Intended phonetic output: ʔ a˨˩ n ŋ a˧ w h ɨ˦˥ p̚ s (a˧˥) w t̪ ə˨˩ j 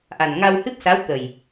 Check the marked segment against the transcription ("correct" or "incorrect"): correct